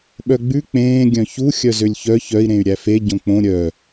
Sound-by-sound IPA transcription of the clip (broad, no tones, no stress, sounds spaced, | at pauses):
ɓ œ ɡ͡b ʉ k͡p ẽː ɡʲ œ̃ ç u xʲ œ z ø lʲ ç œ ç œ i̯ ɾ ẽ y̯ ɾʲ æ f e ɟ õ k͡p õ ɾʲ œ